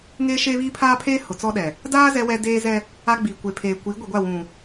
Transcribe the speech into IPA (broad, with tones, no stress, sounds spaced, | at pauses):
ŋ e˦ ʃ eː˦ β iː˦ pʰ aː˦ pʰ eː˦ h ʊ˨ t͡s ɔ˦ ɗ ɛ˨ | d aː˦ z ɛ˦ w ɛ˦ d eː˦ z ɛ˦ | a˦ ɡ͡b iː˨ kʷ e˨ pʰ eː˨ kʷ iː˨˦ ɡʷ i˨ ɡʷ a˦˨ w ũ˨